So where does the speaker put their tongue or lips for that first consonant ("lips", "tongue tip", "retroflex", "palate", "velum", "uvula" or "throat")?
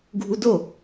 velum